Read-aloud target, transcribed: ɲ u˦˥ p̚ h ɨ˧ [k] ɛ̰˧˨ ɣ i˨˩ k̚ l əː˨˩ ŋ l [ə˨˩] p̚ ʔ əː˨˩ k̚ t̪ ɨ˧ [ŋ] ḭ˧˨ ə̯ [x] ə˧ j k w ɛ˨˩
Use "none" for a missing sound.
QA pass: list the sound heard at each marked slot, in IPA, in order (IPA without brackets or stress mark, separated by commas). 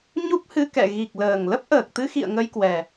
k, ə˦˥, x, ŋ